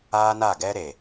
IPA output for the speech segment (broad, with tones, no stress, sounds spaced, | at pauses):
aː˦ n a˦˨ ɡ ɛ˦ ɾ e˨